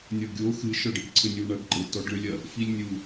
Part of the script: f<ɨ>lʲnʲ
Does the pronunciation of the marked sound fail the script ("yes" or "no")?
yes